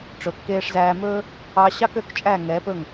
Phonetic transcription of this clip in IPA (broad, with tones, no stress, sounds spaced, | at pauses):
ʈ͡ʂ ɵ˩ kː eː˧ ʂ z æː˧ m ɵː˥ | ɑ˧ ɕ ɑ˥ k ø˩˥ k t͡ʃʼ æ˥˩ ŋ ɛː˩˥ p ɵ˥˩ ŋ